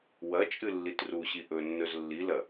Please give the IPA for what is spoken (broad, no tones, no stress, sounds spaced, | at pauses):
w ɐ t͡ʃʼ ɨ lː i t r u ɕ i ʔ ɵ nː ɵ z lː i l ɐ